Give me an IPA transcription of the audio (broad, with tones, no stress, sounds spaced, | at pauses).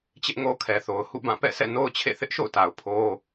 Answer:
t͡ɕ ɪ˦ ʔ ŋ o˦ kʰ ɛ˨ θ o˨ ʊ̯ h ṵ˦˨ b ã˦˨ p ɛ̰˦˨ sʰ ɛ̰˦˨ n o˦ ʊ̯ t͡ɕʰ ḛ˦˨ θ ɪ˦ ʔ ʃ o̰˦˨ ʊ̯ t a˨ ʊ̯ pʰ o˦